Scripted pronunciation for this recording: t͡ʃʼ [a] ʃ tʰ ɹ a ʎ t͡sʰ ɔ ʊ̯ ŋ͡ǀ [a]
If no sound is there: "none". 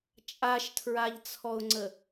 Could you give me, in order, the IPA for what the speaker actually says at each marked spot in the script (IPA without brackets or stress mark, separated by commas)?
a, ə